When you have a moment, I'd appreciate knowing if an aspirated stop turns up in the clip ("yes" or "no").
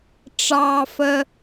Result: no